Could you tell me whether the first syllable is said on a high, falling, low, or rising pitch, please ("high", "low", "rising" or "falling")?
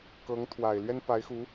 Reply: rising